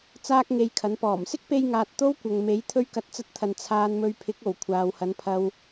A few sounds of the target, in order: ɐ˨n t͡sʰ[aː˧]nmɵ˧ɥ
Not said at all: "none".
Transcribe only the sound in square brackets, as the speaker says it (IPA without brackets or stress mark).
aː˧